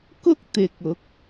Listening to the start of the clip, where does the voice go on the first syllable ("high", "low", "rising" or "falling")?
high